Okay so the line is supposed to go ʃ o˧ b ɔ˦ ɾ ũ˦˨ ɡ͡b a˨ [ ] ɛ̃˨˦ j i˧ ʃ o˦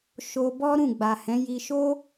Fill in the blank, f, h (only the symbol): h